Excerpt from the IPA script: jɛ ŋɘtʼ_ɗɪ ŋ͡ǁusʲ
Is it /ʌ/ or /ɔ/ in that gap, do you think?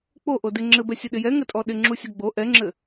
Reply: ɔ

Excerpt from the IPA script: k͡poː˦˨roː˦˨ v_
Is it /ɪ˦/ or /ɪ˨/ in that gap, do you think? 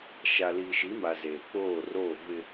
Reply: ɪ˦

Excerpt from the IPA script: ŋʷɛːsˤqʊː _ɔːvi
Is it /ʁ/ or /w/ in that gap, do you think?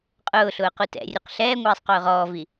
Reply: ʁ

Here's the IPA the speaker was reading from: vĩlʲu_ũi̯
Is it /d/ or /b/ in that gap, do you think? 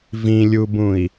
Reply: b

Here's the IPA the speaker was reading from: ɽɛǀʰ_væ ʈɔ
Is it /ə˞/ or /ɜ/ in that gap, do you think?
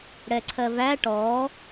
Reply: ɜ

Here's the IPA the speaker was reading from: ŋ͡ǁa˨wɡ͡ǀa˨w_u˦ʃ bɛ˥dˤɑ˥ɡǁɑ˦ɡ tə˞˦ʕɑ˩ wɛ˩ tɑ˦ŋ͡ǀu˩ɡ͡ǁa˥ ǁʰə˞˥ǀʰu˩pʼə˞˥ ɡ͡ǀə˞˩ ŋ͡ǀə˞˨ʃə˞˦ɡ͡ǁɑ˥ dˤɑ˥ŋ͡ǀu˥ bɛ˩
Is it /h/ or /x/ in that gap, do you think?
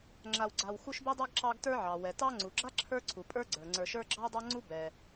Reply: x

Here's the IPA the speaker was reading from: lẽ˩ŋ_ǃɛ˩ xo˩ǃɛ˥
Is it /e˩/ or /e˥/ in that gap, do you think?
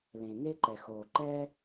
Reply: e˥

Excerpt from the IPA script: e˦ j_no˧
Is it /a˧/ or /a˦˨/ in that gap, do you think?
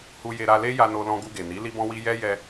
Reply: a˧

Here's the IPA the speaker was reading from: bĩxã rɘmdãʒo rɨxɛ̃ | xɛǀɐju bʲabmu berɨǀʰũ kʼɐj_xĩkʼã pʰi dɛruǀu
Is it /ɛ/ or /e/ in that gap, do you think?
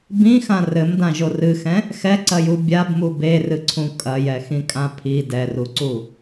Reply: ɛ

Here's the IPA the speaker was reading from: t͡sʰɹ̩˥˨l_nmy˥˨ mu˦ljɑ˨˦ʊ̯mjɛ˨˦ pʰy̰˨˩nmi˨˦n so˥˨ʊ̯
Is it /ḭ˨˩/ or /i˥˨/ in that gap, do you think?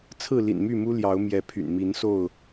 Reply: ḭ˨˩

